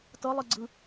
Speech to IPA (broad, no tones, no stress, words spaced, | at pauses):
tɤlˠiɡ͡ǀɯ